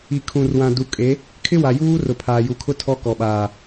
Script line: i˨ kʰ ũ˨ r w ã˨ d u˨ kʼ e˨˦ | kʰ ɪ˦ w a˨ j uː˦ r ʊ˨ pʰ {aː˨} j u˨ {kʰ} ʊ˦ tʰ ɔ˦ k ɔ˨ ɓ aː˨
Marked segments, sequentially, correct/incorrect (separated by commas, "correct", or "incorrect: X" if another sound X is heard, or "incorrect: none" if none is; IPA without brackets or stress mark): correct, correct